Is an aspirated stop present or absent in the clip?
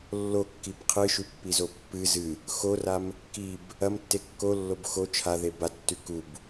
present